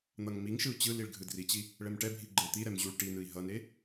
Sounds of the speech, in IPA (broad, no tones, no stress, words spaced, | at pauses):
n̪ʌŋmiŋʃɯu̯ t͡ɕɯliɭ ɡʱɯdrit͡ɕi | ɭɛmʈɛbʱi ɡ͡ǃet̪iɾɛm ʑuɭ ʈinɯi̯ ɦʌne